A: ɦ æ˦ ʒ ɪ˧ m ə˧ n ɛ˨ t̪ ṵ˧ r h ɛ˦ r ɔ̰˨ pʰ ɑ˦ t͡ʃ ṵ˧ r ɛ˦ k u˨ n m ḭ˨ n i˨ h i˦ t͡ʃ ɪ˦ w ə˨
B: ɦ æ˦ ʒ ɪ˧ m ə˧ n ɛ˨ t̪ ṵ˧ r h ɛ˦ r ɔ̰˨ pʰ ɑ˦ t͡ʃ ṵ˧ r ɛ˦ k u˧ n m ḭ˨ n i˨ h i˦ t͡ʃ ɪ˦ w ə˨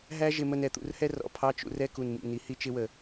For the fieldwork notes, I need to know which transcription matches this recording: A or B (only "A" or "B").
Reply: A